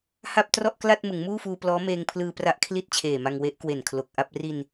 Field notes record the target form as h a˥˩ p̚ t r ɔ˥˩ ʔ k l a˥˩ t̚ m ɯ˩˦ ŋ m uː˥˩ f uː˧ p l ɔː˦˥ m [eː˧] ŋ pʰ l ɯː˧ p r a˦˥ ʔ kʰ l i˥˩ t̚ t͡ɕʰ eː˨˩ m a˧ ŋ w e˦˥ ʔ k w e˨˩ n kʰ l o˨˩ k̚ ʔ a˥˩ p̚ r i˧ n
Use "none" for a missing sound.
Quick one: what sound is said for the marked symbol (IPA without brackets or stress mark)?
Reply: eː˧